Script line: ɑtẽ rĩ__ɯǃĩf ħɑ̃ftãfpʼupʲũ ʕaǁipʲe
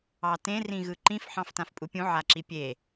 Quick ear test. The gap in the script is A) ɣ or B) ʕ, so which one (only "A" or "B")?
A